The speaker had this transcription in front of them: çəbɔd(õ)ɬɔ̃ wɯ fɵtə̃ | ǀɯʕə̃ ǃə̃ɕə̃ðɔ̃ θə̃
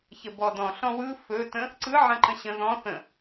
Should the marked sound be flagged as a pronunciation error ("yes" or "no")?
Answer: yes